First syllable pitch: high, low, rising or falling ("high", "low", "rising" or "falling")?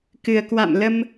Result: low